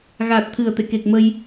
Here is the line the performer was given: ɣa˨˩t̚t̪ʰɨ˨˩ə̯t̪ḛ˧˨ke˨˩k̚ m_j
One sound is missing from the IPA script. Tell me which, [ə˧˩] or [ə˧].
ə˧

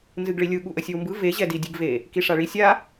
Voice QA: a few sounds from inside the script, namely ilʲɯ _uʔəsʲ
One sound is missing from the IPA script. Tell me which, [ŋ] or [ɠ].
ɠ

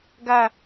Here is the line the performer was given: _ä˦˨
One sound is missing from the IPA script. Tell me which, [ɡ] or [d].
ɡ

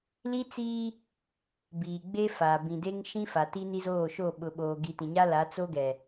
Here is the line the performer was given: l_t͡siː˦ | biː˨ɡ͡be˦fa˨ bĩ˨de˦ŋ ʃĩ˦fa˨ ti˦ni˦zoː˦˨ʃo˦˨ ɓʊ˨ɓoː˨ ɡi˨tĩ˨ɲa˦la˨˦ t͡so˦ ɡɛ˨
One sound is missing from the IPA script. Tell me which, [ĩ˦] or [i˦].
i˦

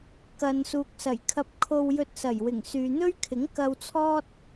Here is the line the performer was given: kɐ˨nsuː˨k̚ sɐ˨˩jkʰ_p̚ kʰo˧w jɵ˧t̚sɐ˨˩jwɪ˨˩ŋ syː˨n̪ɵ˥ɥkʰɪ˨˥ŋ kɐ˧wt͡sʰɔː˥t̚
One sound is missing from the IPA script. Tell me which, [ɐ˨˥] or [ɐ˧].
ɐ˧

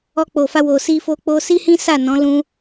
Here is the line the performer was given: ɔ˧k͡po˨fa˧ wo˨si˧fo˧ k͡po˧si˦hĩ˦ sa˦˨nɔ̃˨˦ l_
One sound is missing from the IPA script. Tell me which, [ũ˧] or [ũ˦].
ũ˧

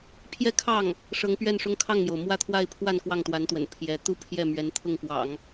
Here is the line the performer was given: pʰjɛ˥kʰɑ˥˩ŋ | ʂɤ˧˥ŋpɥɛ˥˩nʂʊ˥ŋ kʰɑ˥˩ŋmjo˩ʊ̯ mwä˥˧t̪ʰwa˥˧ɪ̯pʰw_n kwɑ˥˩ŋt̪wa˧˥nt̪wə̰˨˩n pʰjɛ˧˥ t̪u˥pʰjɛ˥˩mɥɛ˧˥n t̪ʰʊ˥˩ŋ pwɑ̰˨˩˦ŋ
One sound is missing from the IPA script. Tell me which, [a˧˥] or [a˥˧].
a˥˧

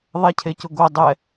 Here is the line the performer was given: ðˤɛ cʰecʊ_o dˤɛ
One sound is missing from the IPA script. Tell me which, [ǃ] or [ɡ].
ɡ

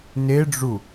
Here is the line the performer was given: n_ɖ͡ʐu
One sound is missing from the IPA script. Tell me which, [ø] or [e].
e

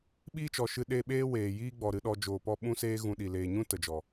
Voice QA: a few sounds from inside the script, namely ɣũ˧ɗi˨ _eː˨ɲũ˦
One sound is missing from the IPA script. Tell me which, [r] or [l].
l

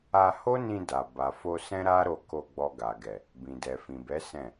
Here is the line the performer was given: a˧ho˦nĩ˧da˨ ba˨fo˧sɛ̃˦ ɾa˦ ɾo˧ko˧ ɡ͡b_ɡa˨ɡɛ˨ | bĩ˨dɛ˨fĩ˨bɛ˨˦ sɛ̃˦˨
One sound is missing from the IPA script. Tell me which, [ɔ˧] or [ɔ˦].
ɔ˧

